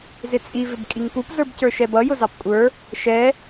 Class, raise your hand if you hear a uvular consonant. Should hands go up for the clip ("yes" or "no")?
no